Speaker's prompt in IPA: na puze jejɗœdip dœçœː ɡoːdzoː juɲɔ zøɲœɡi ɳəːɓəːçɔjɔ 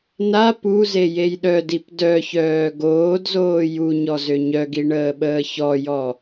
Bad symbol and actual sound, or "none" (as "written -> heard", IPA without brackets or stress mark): none